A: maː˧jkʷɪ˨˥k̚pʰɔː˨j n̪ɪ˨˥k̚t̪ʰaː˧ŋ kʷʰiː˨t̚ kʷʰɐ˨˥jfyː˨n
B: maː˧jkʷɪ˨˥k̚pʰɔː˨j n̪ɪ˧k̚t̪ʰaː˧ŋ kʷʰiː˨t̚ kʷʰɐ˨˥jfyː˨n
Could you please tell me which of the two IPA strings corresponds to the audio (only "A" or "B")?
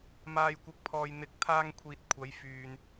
A